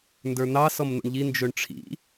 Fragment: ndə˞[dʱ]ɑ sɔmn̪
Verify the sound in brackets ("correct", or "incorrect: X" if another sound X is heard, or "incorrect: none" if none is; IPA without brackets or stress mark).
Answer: incorrect: n̪